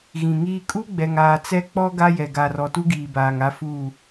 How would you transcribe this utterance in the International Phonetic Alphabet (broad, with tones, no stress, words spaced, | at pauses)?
ɣĩ˨ŋiː˦ kʼu˦ ɡ͡bɛ˨ŋaː˨ t͡sɛ˦ k͡pɔ˦ ɡa˦jɛ˨ ɡaː˨rɔ˨tu˦ ɡiː˨baː˨ŋa˦fuː˦˨